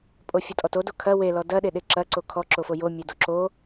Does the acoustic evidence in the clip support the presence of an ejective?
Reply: yes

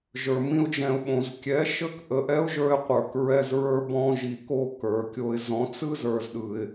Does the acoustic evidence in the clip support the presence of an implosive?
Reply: yes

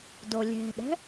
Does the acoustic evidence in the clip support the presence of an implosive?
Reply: yes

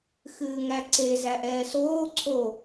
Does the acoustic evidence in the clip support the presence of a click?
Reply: yes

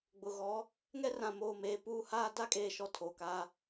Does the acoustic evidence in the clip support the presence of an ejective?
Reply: yes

